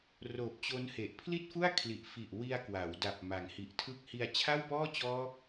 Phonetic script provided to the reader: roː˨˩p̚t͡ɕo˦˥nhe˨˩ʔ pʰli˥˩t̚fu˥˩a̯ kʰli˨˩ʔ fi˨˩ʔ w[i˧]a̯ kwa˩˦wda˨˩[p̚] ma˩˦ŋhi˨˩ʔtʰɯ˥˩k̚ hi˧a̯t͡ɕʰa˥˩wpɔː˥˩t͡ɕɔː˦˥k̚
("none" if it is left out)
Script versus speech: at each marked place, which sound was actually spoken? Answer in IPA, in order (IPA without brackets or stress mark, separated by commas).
i˧, p̚